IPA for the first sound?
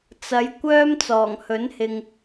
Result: t͡s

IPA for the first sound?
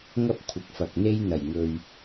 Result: ŋ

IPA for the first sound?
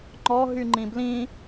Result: ŋ͡ǃ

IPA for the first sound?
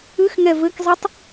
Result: ɨ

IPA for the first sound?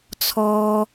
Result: t͡sʰ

